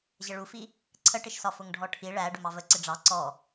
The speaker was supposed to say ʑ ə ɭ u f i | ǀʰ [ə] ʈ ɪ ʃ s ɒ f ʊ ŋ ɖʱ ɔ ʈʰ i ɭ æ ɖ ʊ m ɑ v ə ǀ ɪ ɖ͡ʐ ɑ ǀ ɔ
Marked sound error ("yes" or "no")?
no